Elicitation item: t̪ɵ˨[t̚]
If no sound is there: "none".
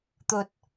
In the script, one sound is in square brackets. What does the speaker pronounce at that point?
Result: t̚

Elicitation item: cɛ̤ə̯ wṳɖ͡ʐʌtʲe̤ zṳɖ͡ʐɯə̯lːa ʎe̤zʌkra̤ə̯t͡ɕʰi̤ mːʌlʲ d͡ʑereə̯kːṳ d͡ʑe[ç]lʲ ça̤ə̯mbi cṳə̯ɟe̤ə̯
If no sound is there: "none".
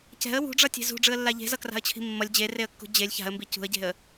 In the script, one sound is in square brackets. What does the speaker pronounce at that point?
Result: none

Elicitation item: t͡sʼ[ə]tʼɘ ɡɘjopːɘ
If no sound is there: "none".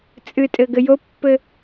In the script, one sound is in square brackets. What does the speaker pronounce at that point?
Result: ɨ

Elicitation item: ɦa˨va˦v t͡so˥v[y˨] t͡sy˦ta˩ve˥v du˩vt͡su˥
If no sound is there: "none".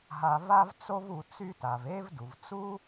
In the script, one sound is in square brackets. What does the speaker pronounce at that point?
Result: u˨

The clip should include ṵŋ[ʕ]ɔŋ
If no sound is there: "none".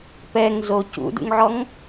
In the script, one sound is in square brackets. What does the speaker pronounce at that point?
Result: ʕ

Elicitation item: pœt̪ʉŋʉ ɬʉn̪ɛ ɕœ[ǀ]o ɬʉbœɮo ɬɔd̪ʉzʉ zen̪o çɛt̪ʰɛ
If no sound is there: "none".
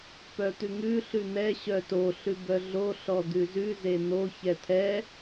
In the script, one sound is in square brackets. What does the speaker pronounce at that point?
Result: t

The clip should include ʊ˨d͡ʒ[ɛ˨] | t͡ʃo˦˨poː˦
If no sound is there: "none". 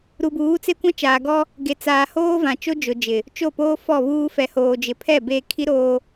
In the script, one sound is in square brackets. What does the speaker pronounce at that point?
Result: ɪ˨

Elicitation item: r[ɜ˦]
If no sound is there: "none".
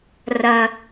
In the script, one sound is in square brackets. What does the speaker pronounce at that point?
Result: ɜ˦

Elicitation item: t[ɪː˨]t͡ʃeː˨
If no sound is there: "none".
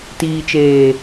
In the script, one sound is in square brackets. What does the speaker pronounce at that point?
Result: iː˨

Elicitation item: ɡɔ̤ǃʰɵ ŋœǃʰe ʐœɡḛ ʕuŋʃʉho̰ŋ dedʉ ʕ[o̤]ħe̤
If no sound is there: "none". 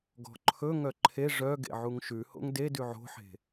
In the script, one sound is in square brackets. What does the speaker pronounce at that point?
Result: o̤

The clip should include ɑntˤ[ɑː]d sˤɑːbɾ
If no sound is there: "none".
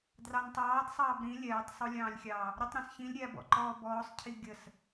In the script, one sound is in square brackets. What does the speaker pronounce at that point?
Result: ɑː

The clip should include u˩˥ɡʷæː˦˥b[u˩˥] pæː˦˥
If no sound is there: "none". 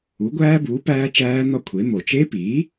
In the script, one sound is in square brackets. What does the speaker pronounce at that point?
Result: uː˩˥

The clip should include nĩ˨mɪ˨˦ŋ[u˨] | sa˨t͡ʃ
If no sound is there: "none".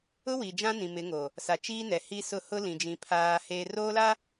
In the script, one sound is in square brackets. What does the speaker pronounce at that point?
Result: o˨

